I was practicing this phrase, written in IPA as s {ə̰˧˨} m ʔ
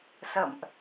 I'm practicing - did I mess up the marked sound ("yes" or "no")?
no